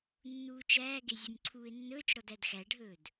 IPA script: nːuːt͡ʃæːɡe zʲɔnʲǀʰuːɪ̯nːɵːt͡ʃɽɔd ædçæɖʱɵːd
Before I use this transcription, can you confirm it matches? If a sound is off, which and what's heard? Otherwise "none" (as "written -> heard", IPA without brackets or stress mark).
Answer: ç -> x